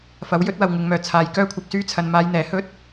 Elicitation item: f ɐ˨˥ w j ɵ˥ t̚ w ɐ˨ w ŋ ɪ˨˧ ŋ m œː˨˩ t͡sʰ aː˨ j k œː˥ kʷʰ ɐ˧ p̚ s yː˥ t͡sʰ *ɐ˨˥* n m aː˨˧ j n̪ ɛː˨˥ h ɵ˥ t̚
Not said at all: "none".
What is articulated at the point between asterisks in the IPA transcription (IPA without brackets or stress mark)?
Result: ɐ˧